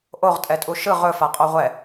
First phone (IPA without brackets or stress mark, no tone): ʔ